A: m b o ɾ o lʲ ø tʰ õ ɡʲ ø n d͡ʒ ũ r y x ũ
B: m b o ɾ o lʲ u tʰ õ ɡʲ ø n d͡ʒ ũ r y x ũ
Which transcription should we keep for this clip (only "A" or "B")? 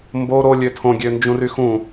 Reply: A